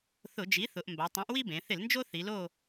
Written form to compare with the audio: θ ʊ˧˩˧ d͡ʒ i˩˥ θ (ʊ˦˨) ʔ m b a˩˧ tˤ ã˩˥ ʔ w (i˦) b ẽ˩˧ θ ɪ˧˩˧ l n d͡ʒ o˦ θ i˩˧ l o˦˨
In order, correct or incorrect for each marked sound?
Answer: incorrect: ʊ˩˧, correct

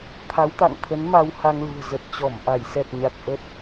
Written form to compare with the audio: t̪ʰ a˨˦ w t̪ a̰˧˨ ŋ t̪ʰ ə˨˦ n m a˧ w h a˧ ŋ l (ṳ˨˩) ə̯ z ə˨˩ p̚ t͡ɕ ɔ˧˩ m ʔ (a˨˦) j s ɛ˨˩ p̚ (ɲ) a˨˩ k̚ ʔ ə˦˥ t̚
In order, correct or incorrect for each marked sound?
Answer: correct, incorrect: a˧˩, correct

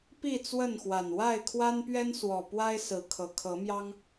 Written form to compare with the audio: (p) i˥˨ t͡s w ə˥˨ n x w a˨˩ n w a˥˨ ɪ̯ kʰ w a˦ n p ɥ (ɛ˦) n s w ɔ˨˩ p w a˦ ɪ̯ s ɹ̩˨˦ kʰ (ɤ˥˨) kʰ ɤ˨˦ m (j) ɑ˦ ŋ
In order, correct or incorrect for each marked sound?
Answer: correct, correct, incorrect: ɤ˨˩, correct

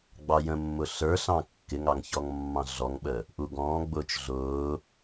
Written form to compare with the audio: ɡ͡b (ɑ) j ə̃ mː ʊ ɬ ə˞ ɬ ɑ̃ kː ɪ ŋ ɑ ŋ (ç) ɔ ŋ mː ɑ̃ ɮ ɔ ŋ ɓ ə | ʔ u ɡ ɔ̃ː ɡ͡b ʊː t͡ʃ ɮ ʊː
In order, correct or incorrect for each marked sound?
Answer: correct, correct

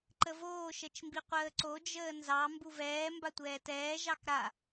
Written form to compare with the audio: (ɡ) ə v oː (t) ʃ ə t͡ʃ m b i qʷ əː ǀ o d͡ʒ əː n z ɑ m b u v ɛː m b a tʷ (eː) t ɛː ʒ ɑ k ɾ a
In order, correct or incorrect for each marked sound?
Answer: incorrect: ǃ, incorrect: none, incorrect: ɛː

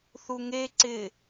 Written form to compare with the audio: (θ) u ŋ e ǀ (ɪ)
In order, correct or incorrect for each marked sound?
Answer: correct, correct

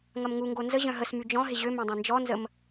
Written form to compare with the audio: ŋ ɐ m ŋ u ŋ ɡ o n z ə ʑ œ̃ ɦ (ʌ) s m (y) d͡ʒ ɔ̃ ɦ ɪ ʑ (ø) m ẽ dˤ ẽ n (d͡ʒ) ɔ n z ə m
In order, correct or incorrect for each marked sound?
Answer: incorrect: ə, correct, correct, correct

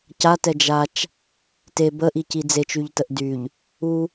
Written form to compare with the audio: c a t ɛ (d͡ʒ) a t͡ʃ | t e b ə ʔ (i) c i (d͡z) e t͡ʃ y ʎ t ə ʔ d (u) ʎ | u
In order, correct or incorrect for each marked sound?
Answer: correct, correct, correct, incorrect: y

